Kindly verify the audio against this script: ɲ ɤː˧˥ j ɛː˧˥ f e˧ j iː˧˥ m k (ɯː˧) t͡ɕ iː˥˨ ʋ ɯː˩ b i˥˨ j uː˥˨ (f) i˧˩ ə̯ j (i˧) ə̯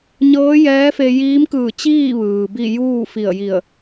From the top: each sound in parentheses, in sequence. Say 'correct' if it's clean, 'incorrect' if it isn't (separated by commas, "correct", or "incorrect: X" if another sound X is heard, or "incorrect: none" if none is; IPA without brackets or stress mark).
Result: incorrect: ɯː˧˩, correct, incorrect: i˧˩